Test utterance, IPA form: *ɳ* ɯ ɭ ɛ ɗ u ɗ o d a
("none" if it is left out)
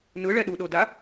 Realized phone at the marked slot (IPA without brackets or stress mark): n